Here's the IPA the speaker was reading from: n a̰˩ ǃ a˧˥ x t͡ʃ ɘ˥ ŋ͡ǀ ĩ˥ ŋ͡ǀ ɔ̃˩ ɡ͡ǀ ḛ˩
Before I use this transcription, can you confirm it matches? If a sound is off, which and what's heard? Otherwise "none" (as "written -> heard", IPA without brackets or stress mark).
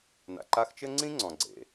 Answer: none